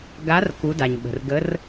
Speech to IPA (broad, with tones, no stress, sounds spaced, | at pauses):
ɡ a˨˦ r k u˨˦ d a˩ ɲ ɓ ə̤˩ r ɡ ə˨˦ r